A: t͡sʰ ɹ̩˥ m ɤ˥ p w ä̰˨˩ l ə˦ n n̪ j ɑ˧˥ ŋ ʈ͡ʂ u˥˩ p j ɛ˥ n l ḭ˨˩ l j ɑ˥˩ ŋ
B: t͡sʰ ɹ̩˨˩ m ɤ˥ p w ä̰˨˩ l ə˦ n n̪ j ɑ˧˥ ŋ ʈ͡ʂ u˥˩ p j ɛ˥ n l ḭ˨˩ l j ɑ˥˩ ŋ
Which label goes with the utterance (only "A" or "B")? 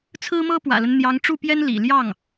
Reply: A